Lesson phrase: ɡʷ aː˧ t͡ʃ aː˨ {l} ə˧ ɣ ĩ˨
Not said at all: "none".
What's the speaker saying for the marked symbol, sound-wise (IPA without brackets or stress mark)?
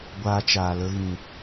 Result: l